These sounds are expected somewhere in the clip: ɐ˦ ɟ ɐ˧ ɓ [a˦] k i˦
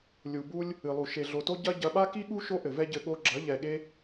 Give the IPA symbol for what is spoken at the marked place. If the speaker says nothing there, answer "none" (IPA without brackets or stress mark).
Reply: a˦